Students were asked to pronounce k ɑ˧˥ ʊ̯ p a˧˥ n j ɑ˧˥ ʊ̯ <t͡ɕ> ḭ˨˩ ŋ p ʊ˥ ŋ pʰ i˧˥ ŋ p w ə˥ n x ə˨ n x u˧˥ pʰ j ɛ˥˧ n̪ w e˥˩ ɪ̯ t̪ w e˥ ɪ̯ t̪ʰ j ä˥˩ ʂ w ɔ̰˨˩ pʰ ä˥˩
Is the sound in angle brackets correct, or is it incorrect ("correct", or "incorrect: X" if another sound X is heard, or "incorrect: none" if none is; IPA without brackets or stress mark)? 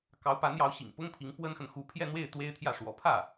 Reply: incorrect: ɕ